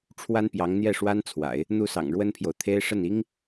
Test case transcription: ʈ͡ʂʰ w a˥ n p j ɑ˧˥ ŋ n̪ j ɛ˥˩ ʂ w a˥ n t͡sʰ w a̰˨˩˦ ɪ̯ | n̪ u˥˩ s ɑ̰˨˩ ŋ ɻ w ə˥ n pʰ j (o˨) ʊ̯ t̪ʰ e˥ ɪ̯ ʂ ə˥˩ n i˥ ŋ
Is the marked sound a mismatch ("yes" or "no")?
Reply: no